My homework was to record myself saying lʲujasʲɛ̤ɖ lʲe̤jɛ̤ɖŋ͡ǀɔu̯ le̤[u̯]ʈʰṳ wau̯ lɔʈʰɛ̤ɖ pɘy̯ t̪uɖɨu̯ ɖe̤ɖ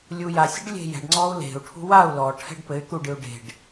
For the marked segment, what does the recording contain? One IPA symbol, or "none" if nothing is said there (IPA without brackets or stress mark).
u̯